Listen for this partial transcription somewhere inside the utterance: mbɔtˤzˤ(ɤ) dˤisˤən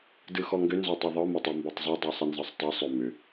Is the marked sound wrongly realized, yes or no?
yes